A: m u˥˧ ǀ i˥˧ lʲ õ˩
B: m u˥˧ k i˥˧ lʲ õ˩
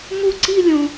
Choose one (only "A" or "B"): A